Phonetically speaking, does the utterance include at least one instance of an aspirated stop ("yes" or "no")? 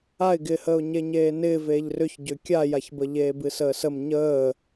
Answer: no